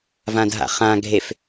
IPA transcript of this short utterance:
v ã d ɦ a̰ χ ã ɡʱ e f

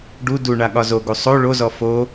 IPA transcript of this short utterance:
ɖ u d u ɳ a ɠ ɒ z o ɡ u sˤ o ɭ o z ɔ f o

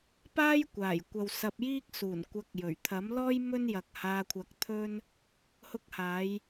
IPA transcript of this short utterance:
p aː˥ j kʷ aː˨˩ j kʷ ɐ˨ w s ɐ˧ p̚ j iː˥ k̚ s uː˨˩ n kʷ ɐ˨˥ k̚ j ɵ˨˩ ɥ t̪ʰ ɐ˨˥ m l ɔː˥ j m ɵ˥ n j ɐ˨ k̚ h aː˧ kʷʰ ɐ˧ k̚ t̪ʰ ɵ˥ n | h ʊ˧ k̚ h aː˨˧ j

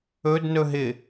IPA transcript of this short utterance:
ɵ d n ɵ ɦ ɪ

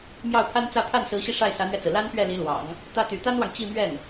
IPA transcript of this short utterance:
m j ɑ˥˩ ʊ̯ pʰ a˥ n t͡s ä˥˧ pʰ a˥˩ n s ɹ̩˧˥ ɕ i˧ ʂ a˥˩ ɪ̯ s ä˧˥ n̪ ɥ ɛ˧ t͡s ɹ̩˩ l a˥ n p ɥ ɛ˥˩ l i˧˥ l w ɑ̰˨˩˦ ŋ | t̪ ä˥ t̪ y˧˥ t̪ a˥ n w ɑ˨ ŋ t͡ɕ i˥˧ m ɥ ɛ˥˩ n

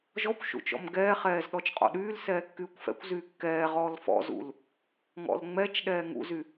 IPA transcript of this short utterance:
ʒ ɔ kʷ ʃ ṵ t͡ʃ ɔ̰ m ɡ ɛː χ ɛː z ɗ ɔ t͡ʃ qʼ ɔ̰ ɗ yː l s ɛː kː yː kʷ f ɛ̰ kʷ z yː kː ɛː ʁ ɔː l f ɔ̰ z ṵ l | ŋ ɔ̰ l ŋ͡m ɛ t͡ʃ ɗ ɛː ŋ ṵ z y

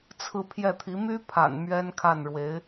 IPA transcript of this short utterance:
t͡sʰ ɹ̩˥˧ pʰ j ɛ˥˩ t̪ʰ i˧˥ m y˥ pʰ a̰˨˩ n m ɥ ɛ˥ n kʰ a˥˩ n ɻ w e˧˥ ɪ̯

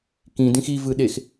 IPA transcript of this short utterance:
k ĩ d ĩ x i v ɯ ɗ e x

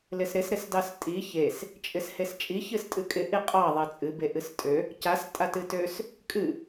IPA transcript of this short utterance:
l ɪ s ɾ ɪ s ɾ ɪ s d ɑ s tʼ i ç e s | t͡ʃʼ ɪ s h e s t͡ʃʼ i ç ɨ s tʼ ɨ kʼ ɪ ʔ i qʼ ɑ ðˤ e t͡sʼ ɨ b e ʔ ɨ s tʼ ø | c a s tʼ a t ɨ t ø s | kʼ ɨ

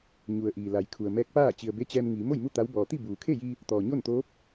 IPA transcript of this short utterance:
ɲ u˩ ə̯ ʔ iː˩ l a˩˧ j kʰ u˩ ə̯ m ɛː˧˥ k̚ p aː˥˨ t͡ɕ i˩ ə̯ b e˧˥ t͡ɕ ɛː˧ m ŋ iː˩˧ m o˥˨ j m u˥˨ t̪ a˧˥ w b ɔː˩ t̪ i˥˨ b uː˩ kʰ e˥˨ j i˧ | t̪ ɔː˩ ɲ o˥˨ n t̪ oː˧˥ p̚

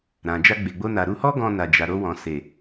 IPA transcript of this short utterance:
ɾ ã˨ d͡ʒ a˧ ɡ͡b e˨ ɡ͡b o˧ n a˨ ɾ u˨˦ h ɔ˦ ɡ ɔ̃˧ n a˨ d͡ʒ a˨ ɾ o˧ w ɔ̃˨ s e˨

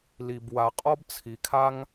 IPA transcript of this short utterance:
l i˧ b w a˧ qʼ ɔ˥ b t͡sʰ i˧ kʰ a˥ ŋ

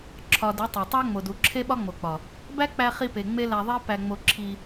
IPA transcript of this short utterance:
ǁʰ ɒ˨ d e˨˦ tˤ æ˨ tˤ æ˦ ŋ͡m o˨ d u˨ ǁʰ e˦ ɓ ɒ˦ ŋ͡m o˨ k͡p ɒ˨ | b æ˦ k͡p æ˧ χ i˧ p e˨ ŋ͡m e˦ l æ˧ ðˤ i˦ p æ˧ ŋ͡m o˧ ǁʰ i˧

